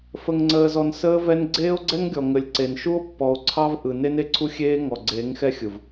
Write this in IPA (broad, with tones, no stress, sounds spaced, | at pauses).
f ə˨ ŋ ŋ͡ǀ əː˨ z ɔ˨ n s əː˦ v ɛ˦ n ɡ͡ǀ eː˦ o̯ ɡ͡ǀ ɛ˦ ŋ ɡʲ ɔ˨ ŋ ə˨ lʲ ǀ e˨ n ʃ u˦ o̯ pː ɔ˨ o̯ ǀʰ ɑ˦ v ʔ ɯ˨ n e˦ n e˦ ǀʰ u˦ xʲ eː˦ ŋ ɔ˨ ɡ͡ǀ eː˨˦ ŋ x ɛ˦ xʲ ɯ˨ v